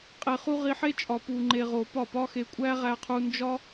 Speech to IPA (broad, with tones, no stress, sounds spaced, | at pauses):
qʼ e˧ χ u˦ ʁ i˧ ħ e˦ t͡ʃʼ ɒ˧ p u˧ ŋ͡ǃ e˧ ʁ o˨ p ɒ˦˨ p ɒ˦ x e˧ kʷʼ æ˦ ʁ æ˧ qʰ u˧ n d͡ʒ ɒ˦